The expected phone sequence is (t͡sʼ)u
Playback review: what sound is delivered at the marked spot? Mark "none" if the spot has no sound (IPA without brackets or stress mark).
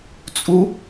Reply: t͡sʼ